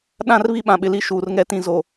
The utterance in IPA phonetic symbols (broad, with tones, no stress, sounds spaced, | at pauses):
ɗ ã˦˨ r β i˦ ɓ ã˨ ɓ ɪ˨ l i˦ ʃ uː˨ r ŋ ɛ˦ t ĩ˦ z o˨